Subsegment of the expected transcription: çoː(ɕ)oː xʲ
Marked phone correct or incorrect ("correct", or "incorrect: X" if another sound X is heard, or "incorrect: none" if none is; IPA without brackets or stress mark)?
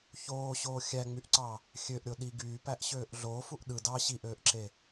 correct